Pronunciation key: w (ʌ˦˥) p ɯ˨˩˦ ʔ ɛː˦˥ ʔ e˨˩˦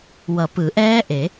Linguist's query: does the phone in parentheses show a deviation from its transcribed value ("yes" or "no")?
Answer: yes